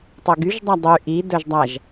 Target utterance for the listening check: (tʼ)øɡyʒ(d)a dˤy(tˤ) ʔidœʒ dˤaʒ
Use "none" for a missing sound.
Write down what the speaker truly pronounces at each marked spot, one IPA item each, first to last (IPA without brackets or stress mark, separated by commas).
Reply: tˤ, dˤ, none